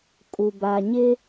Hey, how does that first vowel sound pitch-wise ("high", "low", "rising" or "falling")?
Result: low